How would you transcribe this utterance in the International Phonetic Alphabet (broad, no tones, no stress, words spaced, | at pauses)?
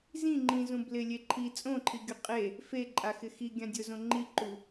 zĩ ŋ͡ǃĩzũ blɪlʲe ǃʰi t͡sʼõǃʰiɡʲo qʼe | feǃʼaxɪ xiɡʲã dʲʊzõ ŋ͡ǃiǃu